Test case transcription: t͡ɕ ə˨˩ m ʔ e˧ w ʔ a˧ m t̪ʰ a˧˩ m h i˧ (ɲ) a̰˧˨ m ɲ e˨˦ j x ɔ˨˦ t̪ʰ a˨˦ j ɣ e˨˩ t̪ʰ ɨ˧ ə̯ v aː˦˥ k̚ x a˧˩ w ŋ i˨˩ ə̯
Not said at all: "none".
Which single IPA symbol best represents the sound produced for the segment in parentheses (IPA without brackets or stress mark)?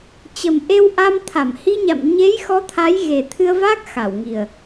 ɲ